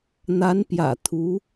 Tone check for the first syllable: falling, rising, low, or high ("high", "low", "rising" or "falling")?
rising